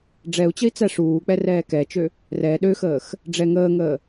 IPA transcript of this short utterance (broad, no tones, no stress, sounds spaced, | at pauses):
ɖ͡ʐ ɛ u̯ t͡ɕ ə i̯ t͡s æ ʂ uː k͡p ɛ r ɛː k ɛ t͡ʃ ø | r ɛ ɗ ø x əː x | ɖ͡ʐ ɛ ŋ əː ŋ əː